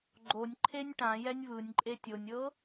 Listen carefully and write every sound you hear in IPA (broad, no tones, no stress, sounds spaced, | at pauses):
ɡ͡ǃ o nʲ ǃʰ e nʲ ʈ ã j ɛ nʲ β ɯ nʲ ǃʼ e tʲ o nʲ ɤ